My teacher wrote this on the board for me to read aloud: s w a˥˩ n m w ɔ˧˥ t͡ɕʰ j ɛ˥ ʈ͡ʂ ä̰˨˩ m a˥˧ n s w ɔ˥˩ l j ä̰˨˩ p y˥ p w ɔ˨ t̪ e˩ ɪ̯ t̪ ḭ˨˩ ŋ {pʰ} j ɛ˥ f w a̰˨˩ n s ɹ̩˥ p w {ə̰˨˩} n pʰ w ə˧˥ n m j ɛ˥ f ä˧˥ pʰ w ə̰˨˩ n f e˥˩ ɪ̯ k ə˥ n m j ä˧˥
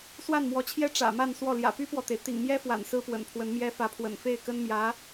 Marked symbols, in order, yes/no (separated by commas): no, yes